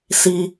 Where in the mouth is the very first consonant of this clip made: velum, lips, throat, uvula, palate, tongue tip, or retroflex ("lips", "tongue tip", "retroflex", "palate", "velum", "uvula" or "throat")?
tongue tip